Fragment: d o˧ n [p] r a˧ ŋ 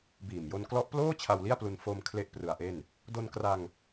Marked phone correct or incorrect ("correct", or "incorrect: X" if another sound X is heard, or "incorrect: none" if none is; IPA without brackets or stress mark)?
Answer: incorrect: k